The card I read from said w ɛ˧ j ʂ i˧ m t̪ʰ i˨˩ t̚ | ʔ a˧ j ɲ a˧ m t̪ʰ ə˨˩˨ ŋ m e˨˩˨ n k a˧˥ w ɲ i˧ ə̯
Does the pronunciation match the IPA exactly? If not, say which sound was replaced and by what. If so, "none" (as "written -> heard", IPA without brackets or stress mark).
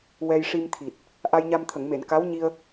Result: none